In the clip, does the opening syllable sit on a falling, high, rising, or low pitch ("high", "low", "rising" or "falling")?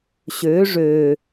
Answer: rising